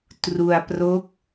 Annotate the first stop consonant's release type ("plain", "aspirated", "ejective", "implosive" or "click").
plain